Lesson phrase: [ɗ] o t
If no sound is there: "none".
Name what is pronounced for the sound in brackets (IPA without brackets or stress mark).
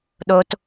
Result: ɗ